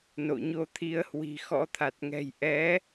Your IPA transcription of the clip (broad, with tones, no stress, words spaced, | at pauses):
no̰˧˨ɲo˧t̪ʰi˧ə̯hwi̤˨˩ xɔ̰˧˥t̪ʰa˨˩t̚ŋɛ̤˨˩j ʔɛ˨˦